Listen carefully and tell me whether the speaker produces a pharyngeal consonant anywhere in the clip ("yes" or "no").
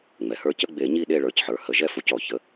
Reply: yes